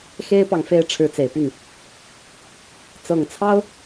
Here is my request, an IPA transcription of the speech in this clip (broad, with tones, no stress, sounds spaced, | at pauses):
x e˥ ɪ̯ p ɑ˨ ŋ f e˥˩ ɪ̯ ʈ͡ʂʰ ɻ̩˧˥ t͡s e˨˩ ɪ̯ p y˥˩ n | t͡s ɤ˨˩ ŋ t͡sʰ ɑ˥ ʊ̯